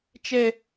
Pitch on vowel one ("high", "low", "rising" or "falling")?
high